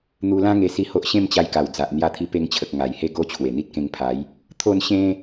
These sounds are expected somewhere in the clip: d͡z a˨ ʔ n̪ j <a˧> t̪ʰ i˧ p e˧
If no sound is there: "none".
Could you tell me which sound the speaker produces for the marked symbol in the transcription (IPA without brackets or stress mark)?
a˧